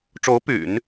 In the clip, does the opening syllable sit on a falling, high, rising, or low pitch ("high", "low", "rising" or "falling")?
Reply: rising